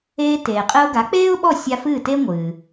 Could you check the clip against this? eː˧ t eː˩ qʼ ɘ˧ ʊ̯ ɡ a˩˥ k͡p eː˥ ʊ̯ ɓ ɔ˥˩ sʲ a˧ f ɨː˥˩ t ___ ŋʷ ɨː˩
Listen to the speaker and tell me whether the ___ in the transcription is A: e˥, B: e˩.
A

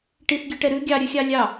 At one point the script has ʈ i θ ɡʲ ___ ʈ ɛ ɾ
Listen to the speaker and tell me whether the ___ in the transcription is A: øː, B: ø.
B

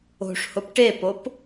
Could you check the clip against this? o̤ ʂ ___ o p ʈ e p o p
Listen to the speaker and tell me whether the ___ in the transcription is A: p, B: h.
B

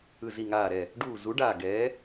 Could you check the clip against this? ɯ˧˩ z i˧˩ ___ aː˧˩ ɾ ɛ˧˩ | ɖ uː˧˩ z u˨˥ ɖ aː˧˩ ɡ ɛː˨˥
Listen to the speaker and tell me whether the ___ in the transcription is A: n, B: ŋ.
B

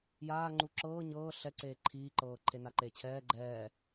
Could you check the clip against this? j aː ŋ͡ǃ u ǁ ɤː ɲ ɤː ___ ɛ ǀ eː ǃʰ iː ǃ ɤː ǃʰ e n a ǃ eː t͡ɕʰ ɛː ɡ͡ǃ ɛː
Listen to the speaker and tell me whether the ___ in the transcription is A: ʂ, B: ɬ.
B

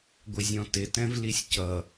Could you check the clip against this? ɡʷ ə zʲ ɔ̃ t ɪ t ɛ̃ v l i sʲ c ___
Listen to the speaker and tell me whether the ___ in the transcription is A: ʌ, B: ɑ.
A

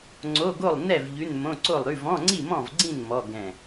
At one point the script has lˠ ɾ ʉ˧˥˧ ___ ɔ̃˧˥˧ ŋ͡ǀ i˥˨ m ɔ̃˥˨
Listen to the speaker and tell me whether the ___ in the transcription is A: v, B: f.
A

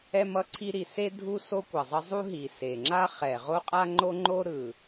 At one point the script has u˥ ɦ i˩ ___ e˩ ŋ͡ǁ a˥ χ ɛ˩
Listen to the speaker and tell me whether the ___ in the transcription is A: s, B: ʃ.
A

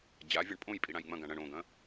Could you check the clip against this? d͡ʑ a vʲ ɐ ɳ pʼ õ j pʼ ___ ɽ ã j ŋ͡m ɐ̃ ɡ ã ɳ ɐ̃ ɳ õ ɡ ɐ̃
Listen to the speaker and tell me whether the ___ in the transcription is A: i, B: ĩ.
A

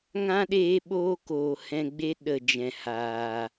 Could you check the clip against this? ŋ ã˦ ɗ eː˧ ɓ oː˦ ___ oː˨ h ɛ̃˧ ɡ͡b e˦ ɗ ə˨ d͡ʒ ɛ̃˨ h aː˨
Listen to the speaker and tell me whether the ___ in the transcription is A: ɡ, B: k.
B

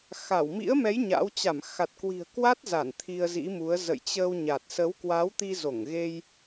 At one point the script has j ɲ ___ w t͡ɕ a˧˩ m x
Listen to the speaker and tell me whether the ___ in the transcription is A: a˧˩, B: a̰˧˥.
B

